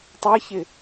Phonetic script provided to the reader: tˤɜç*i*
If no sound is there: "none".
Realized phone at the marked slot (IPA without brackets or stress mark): ɪ